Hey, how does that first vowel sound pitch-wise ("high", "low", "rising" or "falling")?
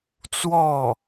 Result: falling